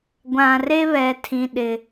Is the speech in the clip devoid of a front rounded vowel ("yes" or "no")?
yes